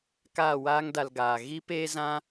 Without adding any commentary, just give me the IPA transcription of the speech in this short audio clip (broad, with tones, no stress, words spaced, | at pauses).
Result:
kaː˦˨ waː˦ŋda˧lɡaː˨ ɣi˦p eː˦zã˦